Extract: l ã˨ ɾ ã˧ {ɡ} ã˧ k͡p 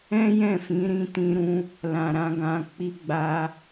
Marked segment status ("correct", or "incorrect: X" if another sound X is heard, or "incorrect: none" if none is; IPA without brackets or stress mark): correct